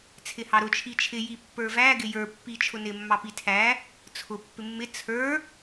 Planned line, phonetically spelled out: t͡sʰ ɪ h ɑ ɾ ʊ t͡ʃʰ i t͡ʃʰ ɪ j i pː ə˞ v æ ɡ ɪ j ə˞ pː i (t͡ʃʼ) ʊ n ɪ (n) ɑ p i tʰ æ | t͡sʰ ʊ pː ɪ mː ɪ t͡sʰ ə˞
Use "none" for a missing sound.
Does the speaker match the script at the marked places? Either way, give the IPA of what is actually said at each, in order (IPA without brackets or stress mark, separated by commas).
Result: t͡ʃʰ, mː